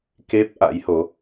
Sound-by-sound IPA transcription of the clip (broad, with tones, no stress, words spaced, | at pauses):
ke˦˥p̚ ʔa̰˧˥jho˨˦